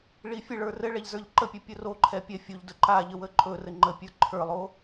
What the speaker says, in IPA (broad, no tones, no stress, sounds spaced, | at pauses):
ɭ i fʲ ɘ ɭ ə˞ r ɘ ɭ ɛ ʎ z ə˞ ʎ ǃ ə pʲ ɘ pʲ ɵ r o ǃʰ ɛ pʲ ɛ fʲ o ʎ d ɵ ǃ a ʎ ə w ə ǃʼ ɵ r ɘ ŋ͡ǃ ə pʲ ə˞ ǃʰ ə˞ lˠ o